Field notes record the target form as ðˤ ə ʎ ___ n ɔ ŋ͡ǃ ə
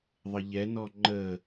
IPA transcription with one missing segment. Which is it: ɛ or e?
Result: ɛ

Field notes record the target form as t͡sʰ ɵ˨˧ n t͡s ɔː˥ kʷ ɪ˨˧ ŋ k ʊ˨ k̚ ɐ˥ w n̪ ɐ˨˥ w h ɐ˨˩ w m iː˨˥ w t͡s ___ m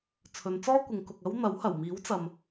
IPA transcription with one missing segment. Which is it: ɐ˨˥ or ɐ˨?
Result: ɐ˨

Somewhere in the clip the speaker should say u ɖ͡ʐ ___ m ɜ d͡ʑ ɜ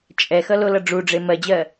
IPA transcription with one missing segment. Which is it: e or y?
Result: e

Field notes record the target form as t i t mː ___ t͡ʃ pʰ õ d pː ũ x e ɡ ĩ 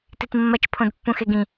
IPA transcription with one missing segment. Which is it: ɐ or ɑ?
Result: ɐ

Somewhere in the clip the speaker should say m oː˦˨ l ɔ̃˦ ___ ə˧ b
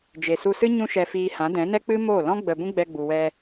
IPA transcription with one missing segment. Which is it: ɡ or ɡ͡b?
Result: ɡ͡b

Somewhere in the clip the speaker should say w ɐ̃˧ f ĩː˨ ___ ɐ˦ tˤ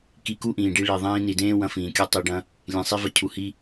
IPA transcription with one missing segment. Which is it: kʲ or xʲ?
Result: kʲ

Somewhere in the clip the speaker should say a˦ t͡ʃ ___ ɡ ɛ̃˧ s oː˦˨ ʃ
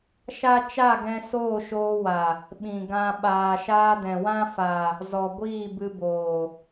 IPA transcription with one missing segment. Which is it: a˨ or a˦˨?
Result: a˦˨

